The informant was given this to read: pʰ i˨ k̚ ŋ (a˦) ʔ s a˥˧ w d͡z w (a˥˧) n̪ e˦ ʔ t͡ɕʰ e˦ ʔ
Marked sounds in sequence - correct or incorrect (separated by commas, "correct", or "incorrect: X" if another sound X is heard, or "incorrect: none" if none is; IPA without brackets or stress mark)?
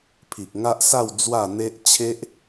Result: correct, correct